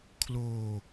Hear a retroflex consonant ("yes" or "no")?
no